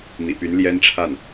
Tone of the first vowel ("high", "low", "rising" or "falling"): low